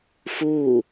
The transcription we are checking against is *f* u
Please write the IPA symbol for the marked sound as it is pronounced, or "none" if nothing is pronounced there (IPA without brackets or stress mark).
f